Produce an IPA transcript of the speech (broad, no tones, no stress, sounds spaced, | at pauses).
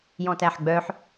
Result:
j ɔ̃ t æ ħ ɡ͡b œ ħ